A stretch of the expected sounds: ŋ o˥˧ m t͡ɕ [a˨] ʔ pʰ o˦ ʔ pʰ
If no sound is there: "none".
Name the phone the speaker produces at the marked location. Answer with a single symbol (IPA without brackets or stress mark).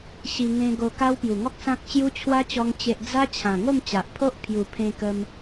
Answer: a˨